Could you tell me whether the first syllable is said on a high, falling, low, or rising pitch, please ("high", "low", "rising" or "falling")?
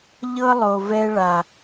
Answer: high